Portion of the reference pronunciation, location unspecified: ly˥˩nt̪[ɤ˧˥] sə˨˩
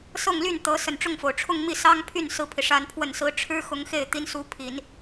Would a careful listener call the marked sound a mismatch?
no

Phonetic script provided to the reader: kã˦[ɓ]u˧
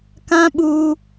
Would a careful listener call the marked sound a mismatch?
no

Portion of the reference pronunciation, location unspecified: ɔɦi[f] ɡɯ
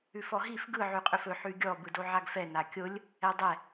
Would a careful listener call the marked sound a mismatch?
no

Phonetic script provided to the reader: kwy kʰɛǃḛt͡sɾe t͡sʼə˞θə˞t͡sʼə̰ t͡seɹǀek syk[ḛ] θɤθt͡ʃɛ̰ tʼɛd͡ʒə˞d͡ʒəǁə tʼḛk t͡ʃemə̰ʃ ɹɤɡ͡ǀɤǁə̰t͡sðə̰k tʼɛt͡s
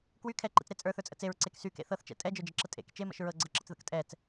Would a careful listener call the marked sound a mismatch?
no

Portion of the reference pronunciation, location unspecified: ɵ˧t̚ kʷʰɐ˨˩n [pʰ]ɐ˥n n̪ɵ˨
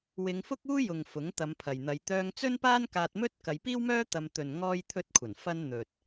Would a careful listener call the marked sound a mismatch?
yes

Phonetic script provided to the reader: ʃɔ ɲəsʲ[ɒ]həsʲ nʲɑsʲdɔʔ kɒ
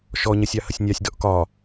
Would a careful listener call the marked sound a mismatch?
yes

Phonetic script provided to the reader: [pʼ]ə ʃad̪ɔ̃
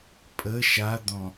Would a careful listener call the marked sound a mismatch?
no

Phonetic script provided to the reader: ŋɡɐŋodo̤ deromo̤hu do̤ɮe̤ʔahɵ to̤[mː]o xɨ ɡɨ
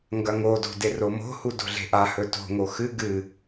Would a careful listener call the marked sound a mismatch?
yes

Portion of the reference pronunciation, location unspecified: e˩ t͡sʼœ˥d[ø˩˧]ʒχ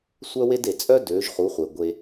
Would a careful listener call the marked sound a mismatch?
no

